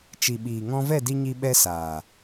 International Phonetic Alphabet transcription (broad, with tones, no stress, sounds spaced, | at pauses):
t͡ʃ i˨ ɓ iː˨ ŋ ɔ̃˧ v ɛ˦˨ d i˧ ɲ i˧ ɓ ɛ˧ s aː˨